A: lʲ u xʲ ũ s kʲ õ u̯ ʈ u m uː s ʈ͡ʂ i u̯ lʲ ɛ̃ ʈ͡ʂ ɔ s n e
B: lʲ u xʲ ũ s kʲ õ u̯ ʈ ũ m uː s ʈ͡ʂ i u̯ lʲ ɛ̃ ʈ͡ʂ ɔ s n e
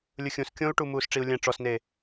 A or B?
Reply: A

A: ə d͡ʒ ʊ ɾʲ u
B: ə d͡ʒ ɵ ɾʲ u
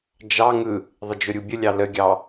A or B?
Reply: A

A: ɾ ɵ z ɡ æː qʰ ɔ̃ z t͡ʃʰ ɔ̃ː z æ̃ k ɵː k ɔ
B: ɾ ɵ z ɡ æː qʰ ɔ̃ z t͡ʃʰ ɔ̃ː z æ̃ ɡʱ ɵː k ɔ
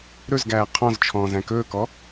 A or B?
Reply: A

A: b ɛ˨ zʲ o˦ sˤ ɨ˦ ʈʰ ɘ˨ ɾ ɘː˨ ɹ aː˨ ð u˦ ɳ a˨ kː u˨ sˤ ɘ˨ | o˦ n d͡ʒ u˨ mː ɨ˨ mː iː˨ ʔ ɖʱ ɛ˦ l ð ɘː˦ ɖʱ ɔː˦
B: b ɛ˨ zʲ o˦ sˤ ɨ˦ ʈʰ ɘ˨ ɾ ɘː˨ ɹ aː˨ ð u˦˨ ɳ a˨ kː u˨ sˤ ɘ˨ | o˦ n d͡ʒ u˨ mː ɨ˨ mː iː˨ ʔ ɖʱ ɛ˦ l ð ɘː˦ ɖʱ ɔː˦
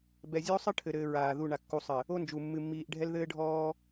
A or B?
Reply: B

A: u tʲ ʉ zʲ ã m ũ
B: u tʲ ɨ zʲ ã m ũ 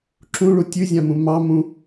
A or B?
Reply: A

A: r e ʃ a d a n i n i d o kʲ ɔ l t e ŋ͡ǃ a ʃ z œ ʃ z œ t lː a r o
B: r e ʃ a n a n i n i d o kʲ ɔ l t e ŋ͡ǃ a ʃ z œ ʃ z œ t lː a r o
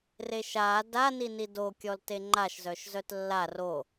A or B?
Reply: A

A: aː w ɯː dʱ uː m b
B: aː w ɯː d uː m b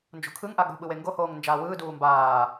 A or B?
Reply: B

